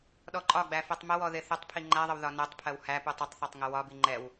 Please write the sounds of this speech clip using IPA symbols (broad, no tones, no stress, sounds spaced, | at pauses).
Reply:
ɗ ɔ ǃʼ ɒ ɡ͡b æ f ɛ tˤ m ə w ɔ ð ɪ θ ə tˤ pʰ i ŋ͡ǃ æ ðˤ ə w ð ɒ n ɛ tˤ pʰ ɜ w h æ p u tˤ ɪ tˤ θ ɒ tˤ ŋ ə w ɒ b i ŋ͡ǃ ɛ w